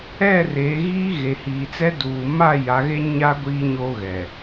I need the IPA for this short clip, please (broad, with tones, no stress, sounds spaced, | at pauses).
ɛ˦˨ r eː˨˦ ɣ iː˦ ɣ e˨ h iː˨ t͡s ɛ˦ d uː˨ m a˦˨ j a˨˦ ɣ e˦ ɲ a˦ ɡʷ iː˨ ɲ o˨ ɣ ɛ˨